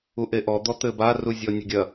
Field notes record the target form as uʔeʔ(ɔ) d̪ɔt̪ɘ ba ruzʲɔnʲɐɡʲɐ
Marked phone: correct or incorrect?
correct